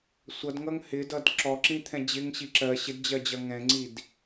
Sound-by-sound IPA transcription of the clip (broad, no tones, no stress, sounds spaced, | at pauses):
sʷ ʌ d ŋ ʌ ŋ h ɪ d ʌ d ǁ ɔ ǁ ĩ t̪ʰ ɛ̃ d͡ʑ ɪ ŋ ɕ i ǁ ɜ ɕ ɪ d d͡ʑ ɜ d͡ʑ ʌ ŋ ɛ̃ ŋ͡ǀ i d